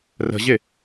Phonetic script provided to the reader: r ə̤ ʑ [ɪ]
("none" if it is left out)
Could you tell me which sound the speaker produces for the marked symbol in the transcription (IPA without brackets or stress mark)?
ɪ